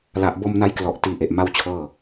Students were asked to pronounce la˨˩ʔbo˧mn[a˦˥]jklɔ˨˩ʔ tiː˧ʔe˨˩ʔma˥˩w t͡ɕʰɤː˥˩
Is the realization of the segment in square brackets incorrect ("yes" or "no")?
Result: no